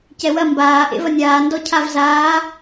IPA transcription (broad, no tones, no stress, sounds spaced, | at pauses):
c ɛ w ɐ m b aː ʔ ḛ v ɐ nʲ aː n d ɔ cʰ a v z aː